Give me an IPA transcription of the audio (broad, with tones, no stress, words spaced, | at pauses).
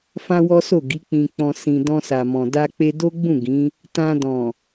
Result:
fã˦wɔ˦so˦˨ ɡi˨˦k͡pĩ˧k͡pɔ̃˧ sĩ˨ dɔ̃˧sa˨mɔ̃˨ da˧k͡pe˧do˦ɡ͡bũ˦˨ ɡĩ˨˦ | tã˧dɔ̃˨